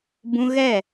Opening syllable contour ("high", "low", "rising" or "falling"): high